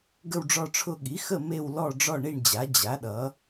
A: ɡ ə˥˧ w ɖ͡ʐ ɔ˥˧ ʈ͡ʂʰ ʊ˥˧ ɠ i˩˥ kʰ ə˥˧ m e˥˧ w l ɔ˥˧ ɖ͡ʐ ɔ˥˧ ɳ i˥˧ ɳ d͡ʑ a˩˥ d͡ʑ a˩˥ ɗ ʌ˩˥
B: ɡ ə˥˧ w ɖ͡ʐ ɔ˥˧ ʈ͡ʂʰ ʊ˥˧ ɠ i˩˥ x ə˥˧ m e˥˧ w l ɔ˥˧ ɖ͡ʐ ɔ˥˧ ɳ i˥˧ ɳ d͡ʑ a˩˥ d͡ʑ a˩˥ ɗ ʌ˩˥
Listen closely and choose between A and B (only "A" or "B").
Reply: B